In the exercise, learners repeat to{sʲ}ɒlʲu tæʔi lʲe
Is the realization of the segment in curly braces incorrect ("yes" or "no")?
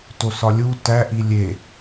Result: yes